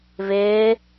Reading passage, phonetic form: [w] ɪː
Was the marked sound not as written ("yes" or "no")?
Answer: yes